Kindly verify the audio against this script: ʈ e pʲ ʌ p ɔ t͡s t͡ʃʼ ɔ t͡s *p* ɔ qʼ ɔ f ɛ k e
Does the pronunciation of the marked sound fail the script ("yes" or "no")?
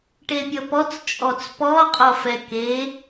no